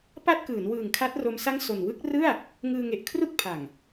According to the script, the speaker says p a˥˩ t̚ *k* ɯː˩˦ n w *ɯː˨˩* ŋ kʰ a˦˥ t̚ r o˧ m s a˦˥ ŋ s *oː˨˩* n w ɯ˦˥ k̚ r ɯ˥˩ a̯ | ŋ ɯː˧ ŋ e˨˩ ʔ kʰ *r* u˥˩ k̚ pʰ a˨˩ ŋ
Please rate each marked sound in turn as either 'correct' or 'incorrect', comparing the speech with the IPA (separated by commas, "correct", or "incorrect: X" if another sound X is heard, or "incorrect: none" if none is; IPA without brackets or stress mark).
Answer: correct, correct, incorrect: o˨˩, correct